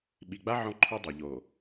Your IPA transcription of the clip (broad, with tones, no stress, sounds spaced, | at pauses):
ɓ i˨ ɡ͡b a˦ ʕ ɔ̃˦ ǃʰ u˦ dˤ ɛ˨ ʎ o˨